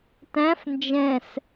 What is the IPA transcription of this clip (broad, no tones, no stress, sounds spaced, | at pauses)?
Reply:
t æ̃ f n d͡ʒ ɛ̃ s